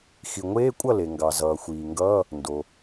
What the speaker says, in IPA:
x i˩ ŋʷ eː˧˥˧ kʷʼ ʌ˥˩ l e˩ ŋ ɡ ɑ˩ z ʌː˩ xʷ iː˩ ŋ ɡ ʌː˧˥˧ | n d o˩

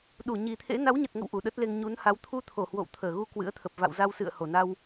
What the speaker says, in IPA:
ɗ u˧˩ ɲ i˨˩ t̪ʰ ḛ˧˥ n a˨˦ w ɲ ə˨˩ t̚ ŋ ə̰˧˨ w ʔ u˧˩ ɗ ə˦˥ t̚ l e˧ ŋ ɲ u˨˦ n h a˨˦ w t̪ʰ u˧ t̪ʰ o˧˩ h w o̰˧˨ w t̪ʰ əː˧˩ ɣ u˧ k w ɨ̰˧˥ ə̯ t̪ʰ ə˨˩ p̚ v a̰˧˨ w z a˧ w s ɨ̰˧˨ ə̯ h o˧˩ n a˧ w

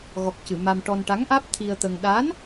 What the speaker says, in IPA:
ɣ ɔ˨˩ k̚ c ɨ˨˩˨ m a˧ m ʈ ɔ˧ n ʈ a˧˥ ŋ ʔ aː˦˥ p̚ t̪ʰ i˧ ə̯ t̪ ə˧ ŋ ɗ a˧˥ n

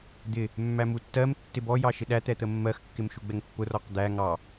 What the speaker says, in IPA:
d̪ ɪ | mː æ m u tː ɜ m tː ɪ b ɔ j ɑ ʃ ɪ ɗ æ t̪ ɛ t̪ ə mː ɜ x kː ɪ m ʃ u ɡ͡b ɛ ŋ pː ʊ r ɔ q d̪ æ ŋ ɑ

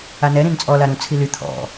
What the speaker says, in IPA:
a n ɛ ɾ ĩ n t͡sʼ ɔ l a ɾ ũ t͡sʰ i l y t̪ʰ ɔ̰

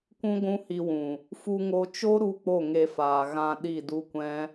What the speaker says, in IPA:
kʷ ũ˦ ɡʷ ũ˦ h i˧ w ũ˨ | f u˧ ŋ o˧ t͡ʃ o˦ ɾ u˦ k͡p o˦˨ ŋ e˧ f aː˨ ɣ ã˧ ɗ i˦˨ d u˦ kʷ ɛ̃˦

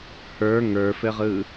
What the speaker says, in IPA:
h ə˞ ŋ ə˞ f ɘ ʁ ɯ

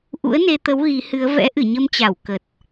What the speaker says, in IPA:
ʔ ṵ˧˥ ə̯ n e˧ t̪ ə˨˦ w ɣ i˨˦ h ɨ˨˦ ə̯ v ɛ̰˧˥ ʔ ɨ˧˩ ɲ ə˧ m t͡ɕ a˧˩ w k ə˨˩ t̚

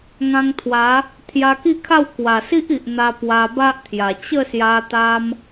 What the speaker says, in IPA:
ŋ ã˧ ŋ t̪ʰ w a˨˦ | t̪ʰ j a˧ k i˥˧ kʰ a˥˧ w k w a˨˩ s i˦ ʔ i˨ ʔ n̪ a˧ p w a˧ b a˦ ʔ t̪ʰ j a˨˩ t͡ɕ ə˥˧ s j a˧ t̪ a˧ m

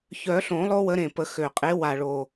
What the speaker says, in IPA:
ç œ˨˩˦ ɬ õ˨˩˦ lˠ o˦ w ə˨˦ ɾ ẽ˨˩ p ə˨˩˦ x ø˨˩ qʼ e˨˦ w a˨˩ ɭ o˨˩

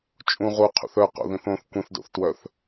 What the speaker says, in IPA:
t͡ʃʼ ũ ʁ u qʰ ṵ θ œ q o̰ ð ĩ θ õ θ kʷ ĩ θ d o̰ θ t w œ θ

